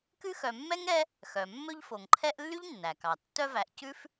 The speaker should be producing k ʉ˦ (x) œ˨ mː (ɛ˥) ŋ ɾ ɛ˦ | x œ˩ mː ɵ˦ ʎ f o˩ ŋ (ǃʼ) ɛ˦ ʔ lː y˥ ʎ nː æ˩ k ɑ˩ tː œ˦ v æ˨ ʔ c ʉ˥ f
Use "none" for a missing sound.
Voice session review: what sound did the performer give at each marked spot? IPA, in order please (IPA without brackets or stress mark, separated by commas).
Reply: x, ɛ˥, ǃʰ